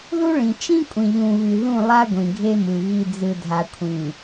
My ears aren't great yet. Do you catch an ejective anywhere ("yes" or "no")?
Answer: yes